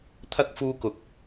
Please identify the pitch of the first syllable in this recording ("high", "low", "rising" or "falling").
high